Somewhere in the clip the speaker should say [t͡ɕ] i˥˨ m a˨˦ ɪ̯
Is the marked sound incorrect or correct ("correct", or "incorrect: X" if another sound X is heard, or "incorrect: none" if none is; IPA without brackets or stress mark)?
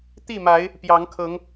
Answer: incorrect: t̪